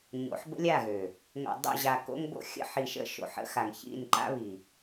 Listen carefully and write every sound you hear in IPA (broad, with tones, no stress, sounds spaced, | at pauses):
ɲ o̰˨˦ ħ b ə̰˦ lʲ a˦˨ ɣ ø˨ | ŋ o̰˨ dˤ o̰˦˨ ʑ a˨ k o̰˦ ŋ b o̰˦ xʲ ə̰˦ ħ i˨ ʃ ə̰˦ ʃ o̰˨ ħ ə̰˦ x a˨ ŋ ç ḭ˦˨ n ǃ a̰˦ β i˨